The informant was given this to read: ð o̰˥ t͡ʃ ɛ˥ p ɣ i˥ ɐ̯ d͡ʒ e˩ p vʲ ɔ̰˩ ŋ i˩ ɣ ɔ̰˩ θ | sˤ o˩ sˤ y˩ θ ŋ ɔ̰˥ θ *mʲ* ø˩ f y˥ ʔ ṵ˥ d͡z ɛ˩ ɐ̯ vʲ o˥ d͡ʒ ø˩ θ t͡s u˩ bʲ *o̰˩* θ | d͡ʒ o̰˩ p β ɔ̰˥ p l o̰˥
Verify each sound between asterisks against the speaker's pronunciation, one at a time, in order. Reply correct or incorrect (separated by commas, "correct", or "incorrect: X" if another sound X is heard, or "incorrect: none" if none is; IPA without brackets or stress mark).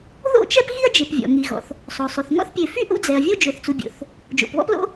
incorrect: pʲ, correct